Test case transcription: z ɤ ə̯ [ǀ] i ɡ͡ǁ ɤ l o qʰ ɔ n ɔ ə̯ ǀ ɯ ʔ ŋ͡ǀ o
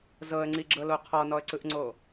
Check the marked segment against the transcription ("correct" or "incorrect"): incorrect